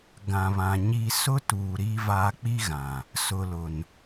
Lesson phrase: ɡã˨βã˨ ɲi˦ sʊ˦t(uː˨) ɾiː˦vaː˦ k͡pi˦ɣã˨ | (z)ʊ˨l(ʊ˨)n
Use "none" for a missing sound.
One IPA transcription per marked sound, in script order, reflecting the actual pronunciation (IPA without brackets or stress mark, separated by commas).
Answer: uː˨, s, ʊ˨